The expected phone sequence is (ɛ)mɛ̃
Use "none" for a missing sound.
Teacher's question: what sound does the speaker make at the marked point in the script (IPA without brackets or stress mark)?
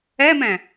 ɛ